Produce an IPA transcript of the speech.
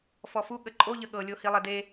f ɔ f u ɠ ə ǃʼ o ʎ ə ɠ ɤ lʲ o h i lˠ e d e

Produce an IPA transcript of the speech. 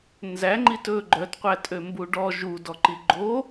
n z æ ŋ͡ǃ i t ɵ ɡ͡ǃ œ t qʷ æ tʼ ø m b u ɖ ɔ ʒ u d ɔ ǃ i ɡ͡ǃ o

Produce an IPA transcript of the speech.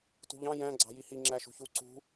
t ṳ ʎ ɑ̃ j æ̃ ɡ͡ǀ ɑ̤ j i h i ŋ͡ǁ æ ʃ ṳ ç u ǀ ṳ

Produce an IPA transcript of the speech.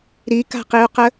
ɾ i k a̤ q i u̯ q ə

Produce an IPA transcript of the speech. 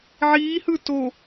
ʕ iː h ɯ t o

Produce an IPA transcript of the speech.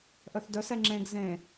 ʔ œ θ d œ s ɛ ŋ͡ǁ ẽ ɡ z ẽ

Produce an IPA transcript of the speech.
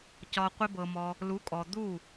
c ɒ˧ qʷ ɪ˦ b ɤ˧ m ɔ˧ | l u˨˦ kʼ ɔ˨ d̪ u˦˨

